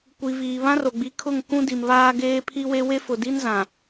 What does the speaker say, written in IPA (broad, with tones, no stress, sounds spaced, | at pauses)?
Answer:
kʷ i˨ v iː˨ β ã˦ r o˨ ɡ͡b i˨˦ kʰ ʊ˦˨ ŋ k ũ˦ d i˨ m β aː˦ ɡ eː˦ pʰ i˦ w e˦ w e˦ f ʊ˨ d i˦ n z ã˨